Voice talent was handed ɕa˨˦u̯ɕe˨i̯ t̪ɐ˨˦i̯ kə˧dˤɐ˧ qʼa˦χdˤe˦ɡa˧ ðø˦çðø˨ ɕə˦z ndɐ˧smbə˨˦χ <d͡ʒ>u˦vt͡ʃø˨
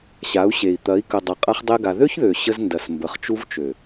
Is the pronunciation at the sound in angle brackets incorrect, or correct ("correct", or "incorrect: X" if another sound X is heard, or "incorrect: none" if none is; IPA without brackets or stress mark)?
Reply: incorrect: t͡ʃ